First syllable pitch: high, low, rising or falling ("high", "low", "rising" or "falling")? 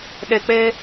low